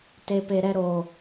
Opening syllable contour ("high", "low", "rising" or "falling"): low